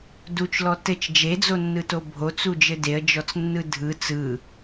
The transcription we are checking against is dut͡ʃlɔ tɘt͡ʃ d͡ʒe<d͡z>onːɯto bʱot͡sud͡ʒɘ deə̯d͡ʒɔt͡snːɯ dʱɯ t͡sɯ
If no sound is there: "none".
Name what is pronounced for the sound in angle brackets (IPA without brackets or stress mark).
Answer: d͡z